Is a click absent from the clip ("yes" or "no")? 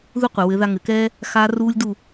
yes